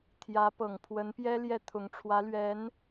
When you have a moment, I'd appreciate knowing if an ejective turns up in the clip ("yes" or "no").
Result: no